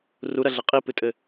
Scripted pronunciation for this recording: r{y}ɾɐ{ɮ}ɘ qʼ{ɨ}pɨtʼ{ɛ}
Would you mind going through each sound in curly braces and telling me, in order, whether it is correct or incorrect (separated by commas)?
incorrect, correct, incorrect, incorrect